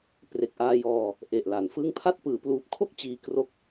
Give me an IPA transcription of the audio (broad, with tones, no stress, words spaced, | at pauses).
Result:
pre˨˩k̚ʔaː˧jɔː˧ | ʔe˨˩ʔla˩˦nfɯ˥˩ŋ pʰa˥˩t̚ pɯː˩˦ pluː˨˩p̚kʰo˥˩k̚ t͡ɕiː˧kro˦˥k̚